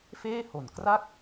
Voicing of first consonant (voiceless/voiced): voiceless